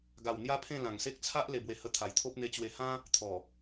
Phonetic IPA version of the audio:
ɡ a˨˩ w n̪ j a˦ pʰ ẽ˥˧ l ã˨˩ ŋ s e˦ k̚ t͡sʰ a˦ ʔ l e˧ b w e˧ h ə˧ t̪ʰ a˨˩ j t̪ʰ o˦ p̚ n̪ e˧ t͡ɕ w e˧ h ã˦ | t̪ʰ ɔ˨˩

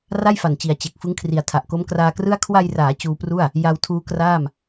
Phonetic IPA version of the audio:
r a˥˩ j f a˨˩ n t͡ɕ i˩˦ a̯ t͡ɕ e˨˩ k̚ f ɯ˦˥ ŋ kʰ r i˨˩ a̯ tʰ a˨˩ ʔ k o˦˥ m k r aː˧ k r ɯ˥˩ a̯ kʰ w a˧ j r aː˩˦ t͡ɕ uː˧ p r u˥˩ a̯ | j a˧ w tʰ uː˦˥ k r aː˥˩ m

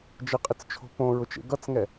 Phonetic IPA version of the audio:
d͡ʒ ə qʼ ɪ t͡s t͡ʃʰ o̤ p õ ɹ ʊ t͡ʃ ḛ ɡ ʌ t͡s ŋ ɛ

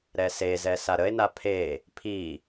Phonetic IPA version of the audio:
ɾ ɛ s e z ɛ s a ɾ ə e̯ n a pʰ e | pʰ i

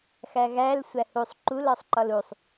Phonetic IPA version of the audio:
x æ ɣ æ l sʷ æ h u sˤ ǃ u l ɒ sˤ ǃ ɒ l u sˤ

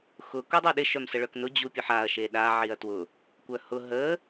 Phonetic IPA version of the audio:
x ʊ k u dˤ o ɗ ɪ ʃ œ m s ə ɭ œ k n ʊ d͡ʑ u pʲ ʊ ħ a ɐ̯ ʃ e ɗ a ʕ i ɐ̯ t w ʊ | kʷ œ h ʊ ɦ ə

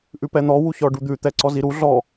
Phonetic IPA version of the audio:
ʔ ʉ p ɛ n̪ ɔ w u ç ɔ ɖ u d̪ ʉ t̪ ɛ ǀ ɔ z i ɾ u ɮ ɔ

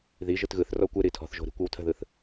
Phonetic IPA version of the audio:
ð i ʒ ɯ t ɣ ɯ θ r ɔ kʷ ɯ ɾ i tʰ ɔ̤ θ ʒ o̤ ɾ i̤ kʷ ɯ w tʰ ə̤ ð ɯ θ

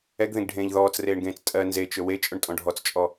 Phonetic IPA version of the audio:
ɛ ɡ ð ẽ ɡ ɖʱ ẽː ʎ ð ɔː t͡s r eː ɳ ɡ ẽː t͡s tʼ ɜ n z e t͡ʃ ɵ w e t͡ʃʼ ɵ ɳ tʼ ɔ̃ ɖʱ ɔ t͡s t͡ʃʼ ɔ

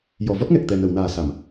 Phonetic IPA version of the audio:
j ɔ˨˩˨ v ɔ˦˥ t̚ ŋ ɛ˨˩ k̚ t̪ ɛ˨˩ n ə˨˩˨ w n aː˨˩ s a˨˩˨ m

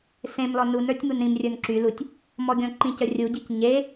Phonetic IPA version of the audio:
s ẽ m l ɔ n u n ə˞ tʲ m u n ɾ ĩ m rʲ ə˞ n ǁ y l u tʲ | m ɔ ɡʲ ɔ̃ ǃ ĩ c ə rʲ u ɟ i c ɲ e

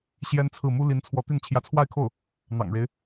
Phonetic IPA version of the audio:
ɕ j ɛ˥ n t͡sʰ ɹ̩˥˩ m u˥ l i˧˥ n t͡sʰ w ɔ˧˥ t̪ i˥˩ n t͡ɕʰ j ä˧˥ t͡sʰ w a˥˧ ɪ̯ kʰ o˥˩ ʊ̯ | n̪ ɑ̰˨˩ ŋ ɻ e˦ ɪ̯

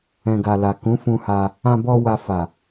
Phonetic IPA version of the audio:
ɛ̃˨ ɡ a˨ l a˨ k ũ˨˦ f ũ˧ h a˧ | ã˧ b ɔ˧ w a˧ f a˨

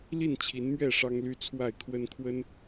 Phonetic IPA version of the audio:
l i˥˨ n t͡ɕʰ i˨˦ n m ɥ ɛ˥˨ ʂ ɑ˦ ŋ l y˦ t͡sʰ w a˥˨ ɪ̯ kʰ w ə˦ n kʰ w ə˦ n

